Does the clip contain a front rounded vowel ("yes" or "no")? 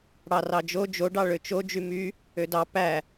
yes